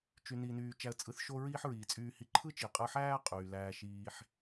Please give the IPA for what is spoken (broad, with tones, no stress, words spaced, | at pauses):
t͡ʃy˩ni˩nyː˩ t͡ʃæ˧ə̯t͡sʼɯ˧θʃo˥ ɹiː˥ħɹiː˩t͡sʼyː˧hi˧ ǃʰɯ˥t͡ʃi˩qʼɯ˧ħæː˥ qʼyː˩læː˧ʃiː˧ħ